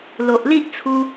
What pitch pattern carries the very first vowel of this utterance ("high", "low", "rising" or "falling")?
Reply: low